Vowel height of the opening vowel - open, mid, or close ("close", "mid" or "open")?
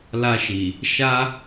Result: open